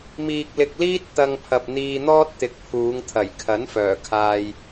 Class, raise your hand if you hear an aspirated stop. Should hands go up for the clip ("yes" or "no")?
yes